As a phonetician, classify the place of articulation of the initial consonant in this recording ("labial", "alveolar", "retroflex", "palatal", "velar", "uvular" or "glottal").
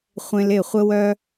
uvular